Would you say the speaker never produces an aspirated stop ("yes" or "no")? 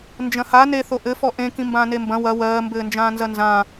yes